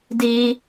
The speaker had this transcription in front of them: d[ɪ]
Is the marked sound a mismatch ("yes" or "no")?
yes